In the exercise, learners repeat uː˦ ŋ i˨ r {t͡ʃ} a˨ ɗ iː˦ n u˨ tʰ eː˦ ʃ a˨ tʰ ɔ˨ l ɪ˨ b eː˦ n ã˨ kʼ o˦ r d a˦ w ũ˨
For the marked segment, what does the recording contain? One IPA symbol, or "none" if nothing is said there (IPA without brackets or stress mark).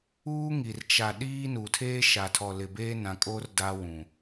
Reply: t͡ʃ